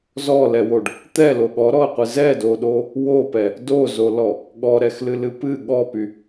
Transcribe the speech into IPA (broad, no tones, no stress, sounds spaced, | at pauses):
z ɔ l ɛ w o ɖ | t̪ ɛ l o ɠ ɔ ɾ ɔ ə̯ qʷ ɨ z ɛ d o ɗ o | w o p ɛ | d o z o l ɔ | ɠ ɔ ɾ ɛ x l ɨ l ɨ p ɨ ɠ ɔ p y